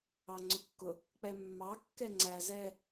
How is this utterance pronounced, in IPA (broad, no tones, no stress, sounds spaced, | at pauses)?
ɑ ŋ͡ǀ ʊ kː ʊ | k͡p ɛ mː ɑ kː ɛ ŋ͡ǀ æ z ɛ